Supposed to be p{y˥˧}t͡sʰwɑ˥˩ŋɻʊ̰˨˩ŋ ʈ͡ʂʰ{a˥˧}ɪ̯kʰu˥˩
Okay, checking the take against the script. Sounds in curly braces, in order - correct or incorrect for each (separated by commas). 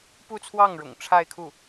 incorrect, correct